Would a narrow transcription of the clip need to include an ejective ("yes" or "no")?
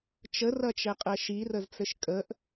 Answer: yes